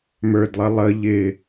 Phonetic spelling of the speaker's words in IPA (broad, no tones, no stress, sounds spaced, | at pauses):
m ə˞ d lˠ ə lˠ ə ʎ ɪ